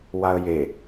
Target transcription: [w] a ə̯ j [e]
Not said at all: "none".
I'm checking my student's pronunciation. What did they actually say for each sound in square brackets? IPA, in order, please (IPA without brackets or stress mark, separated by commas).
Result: w, e